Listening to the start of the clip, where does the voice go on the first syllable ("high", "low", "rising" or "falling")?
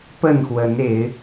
falling